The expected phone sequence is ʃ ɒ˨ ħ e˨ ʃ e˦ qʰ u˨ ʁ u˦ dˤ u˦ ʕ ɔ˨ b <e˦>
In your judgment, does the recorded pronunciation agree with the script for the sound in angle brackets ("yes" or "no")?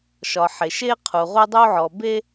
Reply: yes